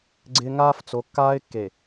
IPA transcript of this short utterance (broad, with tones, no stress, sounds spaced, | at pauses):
ɡ͡ǀ ɪ˦ ŋ aː˦ f t͡s o˨˦ kː aː˦ ɪ̯ kː e˨